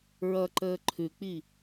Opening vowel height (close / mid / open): mid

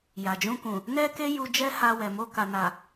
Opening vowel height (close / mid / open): open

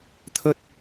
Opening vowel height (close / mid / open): mid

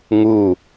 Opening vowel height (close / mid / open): close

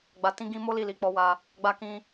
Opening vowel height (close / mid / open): open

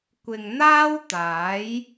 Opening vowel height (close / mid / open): close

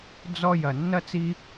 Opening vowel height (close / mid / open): mid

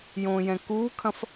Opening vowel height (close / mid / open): mid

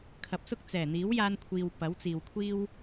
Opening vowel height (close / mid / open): open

